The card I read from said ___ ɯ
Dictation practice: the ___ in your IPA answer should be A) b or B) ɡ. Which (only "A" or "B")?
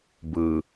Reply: A